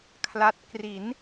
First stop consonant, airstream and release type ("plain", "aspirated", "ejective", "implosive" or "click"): aspirated